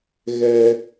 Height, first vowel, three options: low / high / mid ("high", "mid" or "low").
mid